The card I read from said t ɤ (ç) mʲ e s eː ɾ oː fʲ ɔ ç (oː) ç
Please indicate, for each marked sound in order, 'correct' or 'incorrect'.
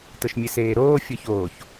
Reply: incorrect: ʃ, correct

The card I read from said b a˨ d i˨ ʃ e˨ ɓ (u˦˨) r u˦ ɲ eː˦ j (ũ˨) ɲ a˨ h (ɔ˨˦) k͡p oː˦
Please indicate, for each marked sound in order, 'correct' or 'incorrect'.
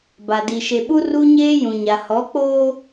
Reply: incorrect: u˦, correct, correct

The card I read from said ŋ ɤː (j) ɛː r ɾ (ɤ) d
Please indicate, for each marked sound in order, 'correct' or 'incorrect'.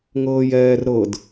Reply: correct, correct

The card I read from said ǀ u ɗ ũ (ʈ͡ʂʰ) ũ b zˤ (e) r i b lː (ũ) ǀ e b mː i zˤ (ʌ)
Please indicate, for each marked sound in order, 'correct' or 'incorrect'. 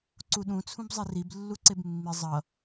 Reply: incorrect: t͡sʰ, correct, incorrect: u, correct

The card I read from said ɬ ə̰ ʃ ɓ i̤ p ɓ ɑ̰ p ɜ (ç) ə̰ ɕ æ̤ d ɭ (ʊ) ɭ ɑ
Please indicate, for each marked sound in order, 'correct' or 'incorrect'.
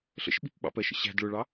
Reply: incorrect: ʃ, correct

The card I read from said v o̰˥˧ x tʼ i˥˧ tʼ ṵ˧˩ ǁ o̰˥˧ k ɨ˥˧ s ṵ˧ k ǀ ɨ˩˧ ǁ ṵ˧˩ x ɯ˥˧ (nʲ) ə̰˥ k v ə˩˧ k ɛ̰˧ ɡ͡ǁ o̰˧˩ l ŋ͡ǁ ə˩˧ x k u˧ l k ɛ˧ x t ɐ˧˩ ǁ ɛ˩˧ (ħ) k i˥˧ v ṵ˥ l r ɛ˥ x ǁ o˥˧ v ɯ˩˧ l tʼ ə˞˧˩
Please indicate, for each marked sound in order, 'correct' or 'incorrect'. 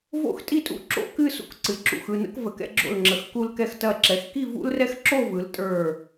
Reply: incorrect: n, incorrect: x

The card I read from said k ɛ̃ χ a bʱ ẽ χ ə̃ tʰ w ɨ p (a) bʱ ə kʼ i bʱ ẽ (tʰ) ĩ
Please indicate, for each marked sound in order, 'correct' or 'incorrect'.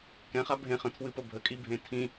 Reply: incorrect: ə, correct

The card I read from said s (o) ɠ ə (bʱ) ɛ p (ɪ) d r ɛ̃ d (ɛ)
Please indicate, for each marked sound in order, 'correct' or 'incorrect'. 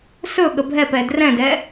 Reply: incorrect: ɵ, correct, incorrect: ɛ, correct

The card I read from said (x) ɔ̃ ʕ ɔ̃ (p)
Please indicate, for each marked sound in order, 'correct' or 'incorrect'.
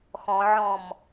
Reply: correct, incorrect: m

